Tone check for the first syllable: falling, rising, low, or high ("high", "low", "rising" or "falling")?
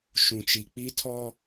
low